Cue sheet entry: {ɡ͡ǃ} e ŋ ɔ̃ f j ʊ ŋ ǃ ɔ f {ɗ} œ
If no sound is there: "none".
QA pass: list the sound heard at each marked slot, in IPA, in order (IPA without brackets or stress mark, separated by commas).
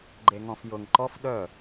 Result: ɡ͡ǃ, ɗ